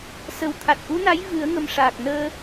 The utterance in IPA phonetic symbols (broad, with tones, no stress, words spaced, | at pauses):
sə˨˩wt̪ʰa˨˩t̚ʔu˧˥na˧˥j vɨ˨˩˦ə̯ŋə˨˩m ʂaː˨˩k̚nəː˧